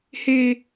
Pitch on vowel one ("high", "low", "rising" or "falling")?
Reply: high